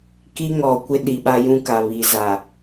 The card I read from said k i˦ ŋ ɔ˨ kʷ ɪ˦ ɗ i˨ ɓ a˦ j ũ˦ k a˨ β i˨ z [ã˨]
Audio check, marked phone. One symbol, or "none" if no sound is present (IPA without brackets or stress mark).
a˨